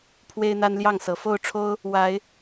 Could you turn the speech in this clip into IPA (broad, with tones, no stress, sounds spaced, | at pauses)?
pʰ w e˦ ɪ̯ n̪ a˦ n l j ɑ˥˨ ŋ s ɤ˨˦ f o˥˨ ʊ̯ ʈ͡ʂʰ o˦ ʊ̯ | w a˨˦ ɪ̯